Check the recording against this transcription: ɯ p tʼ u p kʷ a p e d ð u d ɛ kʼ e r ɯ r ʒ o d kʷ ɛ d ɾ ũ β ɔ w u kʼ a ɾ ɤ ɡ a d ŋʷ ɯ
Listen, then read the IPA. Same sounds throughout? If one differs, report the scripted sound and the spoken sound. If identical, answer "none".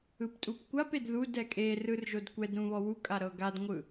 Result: none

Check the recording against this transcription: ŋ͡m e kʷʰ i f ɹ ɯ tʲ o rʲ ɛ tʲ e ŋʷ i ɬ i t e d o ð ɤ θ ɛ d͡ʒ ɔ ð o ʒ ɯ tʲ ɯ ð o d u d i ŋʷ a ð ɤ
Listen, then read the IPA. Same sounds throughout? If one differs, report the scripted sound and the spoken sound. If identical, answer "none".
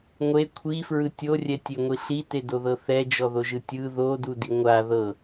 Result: ŋ͡m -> ŋʷ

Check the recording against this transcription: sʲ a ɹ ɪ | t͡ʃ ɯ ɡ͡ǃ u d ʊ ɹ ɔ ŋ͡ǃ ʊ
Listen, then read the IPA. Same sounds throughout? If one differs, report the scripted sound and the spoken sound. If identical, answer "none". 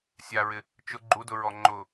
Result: ɯ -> ʊ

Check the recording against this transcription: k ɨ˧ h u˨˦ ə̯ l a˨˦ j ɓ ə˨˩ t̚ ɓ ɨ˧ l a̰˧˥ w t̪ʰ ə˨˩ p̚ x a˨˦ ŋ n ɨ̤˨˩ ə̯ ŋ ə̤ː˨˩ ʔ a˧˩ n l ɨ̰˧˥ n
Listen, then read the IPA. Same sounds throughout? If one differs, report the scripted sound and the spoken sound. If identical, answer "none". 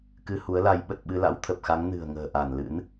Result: none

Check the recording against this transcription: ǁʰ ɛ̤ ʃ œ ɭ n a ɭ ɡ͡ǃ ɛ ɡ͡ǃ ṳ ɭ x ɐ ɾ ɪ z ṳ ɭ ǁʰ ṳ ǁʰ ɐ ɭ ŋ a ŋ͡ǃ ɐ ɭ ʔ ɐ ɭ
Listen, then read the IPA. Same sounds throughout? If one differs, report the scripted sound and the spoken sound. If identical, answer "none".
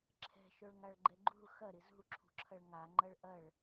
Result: n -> ŋ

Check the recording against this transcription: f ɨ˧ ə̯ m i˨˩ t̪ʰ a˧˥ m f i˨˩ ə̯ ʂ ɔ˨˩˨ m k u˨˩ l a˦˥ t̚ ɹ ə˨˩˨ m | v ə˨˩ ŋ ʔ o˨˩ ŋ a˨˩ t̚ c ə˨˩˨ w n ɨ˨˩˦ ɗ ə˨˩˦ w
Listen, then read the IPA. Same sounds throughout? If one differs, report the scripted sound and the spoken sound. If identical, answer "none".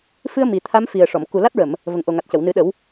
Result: none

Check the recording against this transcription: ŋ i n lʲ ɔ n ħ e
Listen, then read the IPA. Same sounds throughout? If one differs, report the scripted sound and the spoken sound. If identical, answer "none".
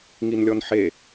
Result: none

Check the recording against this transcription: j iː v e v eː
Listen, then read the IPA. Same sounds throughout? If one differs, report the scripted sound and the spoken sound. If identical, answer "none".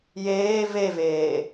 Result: iː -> eː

